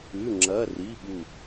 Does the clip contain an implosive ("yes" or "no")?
yes